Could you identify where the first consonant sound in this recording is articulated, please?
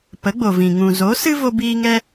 labial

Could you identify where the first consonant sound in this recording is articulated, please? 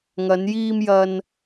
velar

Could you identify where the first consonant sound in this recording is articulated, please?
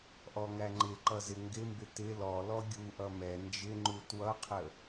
glottal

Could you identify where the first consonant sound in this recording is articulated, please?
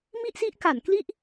labial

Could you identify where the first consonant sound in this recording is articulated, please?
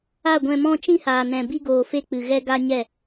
velar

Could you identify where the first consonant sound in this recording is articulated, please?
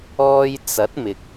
palatal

